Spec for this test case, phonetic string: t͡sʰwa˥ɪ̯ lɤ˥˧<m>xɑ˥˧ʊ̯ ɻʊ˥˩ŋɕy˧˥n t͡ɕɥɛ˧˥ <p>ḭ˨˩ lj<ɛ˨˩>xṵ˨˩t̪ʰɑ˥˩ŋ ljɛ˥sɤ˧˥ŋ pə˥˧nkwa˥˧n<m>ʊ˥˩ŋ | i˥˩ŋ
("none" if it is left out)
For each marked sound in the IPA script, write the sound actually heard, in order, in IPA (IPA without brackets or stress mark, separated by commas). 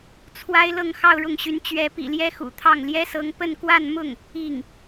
ŋ, p, ɛ˥, m